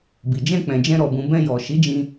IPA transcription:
b i˨ d͡ʒ ɛ̃˧ k͡p ɛ̃˨ d͡ʒ ɛ̃˧ ɾ ɔ˨ b ũ˨ b ɛ̃˧ j ɔ˨ ʃ i˨˦ d͡ʒ ĩ˧

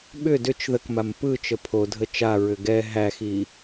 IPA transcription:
ɓ ʏ d ʏ t͡ʃ ð ə k m a m p ɯ t͡ʃ ə pʰ o dʱ ə t͡ʃ a ɹ ʏ ɡ ɛ ɦ æ x i

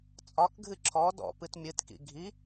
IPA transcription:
t͡sʼ ɒ k ɡʱ ɨ ǁʰ ɔ d ɔ̰ p ɨ t mʲ ɨ t k ḭ ɡʱ i

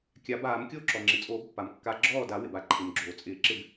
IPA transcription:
kʲ a˨˩˦ b aː˨˩˦ m kʲ oː˥˩ ǁ ɔ˩ ŋ͡ǁ ɪ˩ t͡sʼ oː˨˩˦ b pː a˩ m kː a˨˩˦ ɡ͡ǁ ɔː˥˩ d a˨˩˦ w ɪ˩ b a˩ ǃʰ ɪ˩ m ɡ͡ǁ oː˩ t͡sʼ ɪː˨˩˦ ǁ ɪ˥˩ b

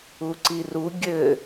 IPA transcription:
u ǀ i r u ɡʲ ɘ

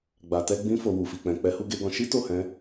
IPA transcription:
ɡ͡b a˨ t ɛ˧ ɡ͡b ĩ˧ f o˨ w u˨ f i˨ k͡p ɛ̃˨ k͡p ɛ˨˦ h u˧ ɡ e˧ ɡ ɔ̃˧ ʃ i˦ t o˦˨ h ɛ̃˨˦

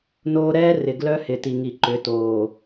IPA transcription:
n oː˦ ɾ ɛː˦ r ɪ˨ ɡ l œ˦ h ɪ˨ t i˨ ŋ i˨ ǃ ʏ˨˦ t oː˨

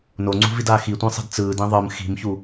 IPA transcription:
n o ŋ͡ǀ ṳ v i d aː x i tʷ ĩ sˤ i̤ d t͡s ɯː d ĩ ðˤ ɯ m x i̤ m ç u

